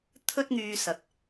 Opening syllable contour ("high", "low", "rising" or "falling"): high